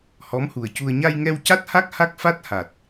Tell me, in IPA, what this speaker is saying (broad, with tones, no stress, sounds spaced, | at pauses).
h ɔ˧˥ m h u˨˩ ə̯ c u˧ ə̯ ɲ a˧ j ŋ ɛ˧ w c a˦˥ t̚ h a˦˥ k̚ h a˦˥ k̚ f a˦˥ t̚ h a˨˩ t̚